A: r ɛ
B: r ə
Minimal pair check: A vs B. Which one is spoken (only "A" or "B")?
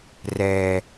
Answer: A